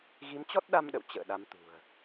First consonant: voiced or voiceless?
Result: voiced